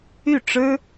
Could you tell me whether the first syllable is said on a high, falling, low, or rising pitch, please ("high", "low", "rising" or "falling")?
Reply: falling